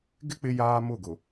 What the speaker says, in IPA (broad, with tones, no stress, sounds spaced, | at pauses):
ɡ ɪ˦ k͡p ɪ˦ j aː˦ m ʊ˦˨ ɡ ʊ˨